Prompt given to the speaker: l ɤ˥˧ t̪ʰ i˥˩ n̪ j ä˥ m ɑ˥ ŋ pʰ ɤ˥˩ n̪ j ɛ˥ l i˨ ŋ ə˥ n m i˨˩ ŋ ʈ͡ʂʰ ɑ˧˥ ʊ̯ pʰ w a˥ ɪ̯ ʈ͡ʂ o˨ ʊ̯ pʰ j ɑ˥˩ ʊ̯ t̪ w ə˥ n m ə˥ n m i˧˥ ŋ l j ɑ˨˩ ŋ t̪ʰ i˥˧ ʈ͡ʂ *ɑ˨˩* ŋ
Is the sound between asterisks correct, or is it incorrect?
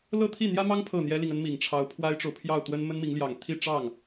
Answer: incorrect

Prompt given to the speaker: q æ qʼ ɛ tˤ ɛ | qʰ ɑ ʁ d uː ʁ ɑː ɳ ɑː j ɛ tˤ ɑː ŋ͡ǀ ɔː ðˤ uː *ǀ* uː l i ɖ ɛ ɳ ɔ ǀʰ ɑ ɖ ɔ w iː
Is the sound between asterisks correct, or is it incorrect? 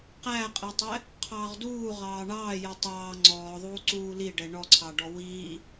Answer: correct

